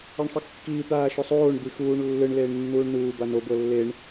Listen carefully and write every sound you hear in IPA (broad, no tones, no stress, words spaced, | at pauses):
ɛɳsˤikːiː t̪aːʃosˤoːɳ d̪ixuːɳ lːɯɳ leːɳnːuːɳnuː bano bɤlːeɳ